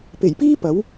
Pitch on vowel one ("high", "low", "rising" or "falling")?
low